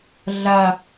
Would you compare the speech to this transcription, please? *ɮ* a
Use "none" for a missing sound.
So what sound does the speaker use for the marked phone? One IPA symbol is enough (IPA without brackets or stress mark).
ɮ